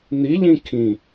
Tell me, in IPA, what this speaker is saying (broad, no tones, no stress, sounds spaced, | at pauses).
n̪ i ʎ ĩ kʰ ĩ